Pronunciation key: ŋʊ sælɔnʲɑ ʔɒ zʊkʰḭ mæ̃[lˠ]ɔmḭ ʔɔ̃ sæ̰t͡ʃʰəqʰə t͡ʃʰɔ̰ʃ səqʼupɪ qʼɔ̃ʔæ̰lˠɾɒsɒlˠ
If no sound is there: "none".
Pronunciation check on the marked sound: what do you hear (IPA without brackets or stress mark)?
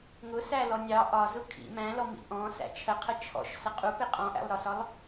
l